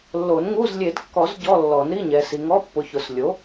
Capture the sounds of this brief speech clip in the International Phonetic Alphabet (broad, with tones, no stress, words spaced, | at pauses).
lːo˨˩˦nŋu˧˥˧z lʲe˨˩˦dkːɔ˨˩˦z ɟɔ˧˥˧ lːɔ˨˩˦n ɾi˧˥˧ɲɛ˨si˨ ŋɔ˧˥˧pːʊ˨çʊ˨˩˦s lʲo˩˥